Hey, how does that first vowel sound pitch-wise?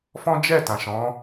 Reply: high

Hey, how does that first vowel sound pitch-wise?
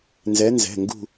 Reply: rising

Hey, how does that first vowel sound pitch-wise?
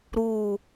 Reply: falling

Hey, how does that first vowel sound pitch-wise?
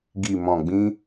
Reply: low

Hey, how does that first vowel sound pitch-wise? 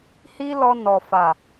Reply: high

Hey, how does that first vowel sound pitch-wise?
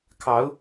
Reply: rising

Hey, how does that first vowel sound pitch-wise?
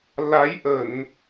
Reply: rising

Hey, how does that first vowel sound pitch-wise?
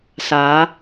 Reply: rising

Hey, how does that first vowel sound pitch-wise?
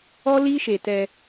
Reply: high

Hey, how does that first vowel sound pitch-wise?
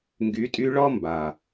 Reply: rising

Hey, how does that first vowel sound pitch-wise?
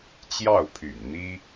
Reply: falling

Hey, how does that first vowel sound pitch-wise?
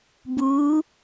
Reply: rising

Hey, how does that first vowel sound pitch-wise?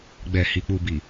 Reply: low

